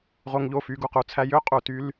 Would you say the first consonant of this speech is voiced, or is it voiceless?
voiced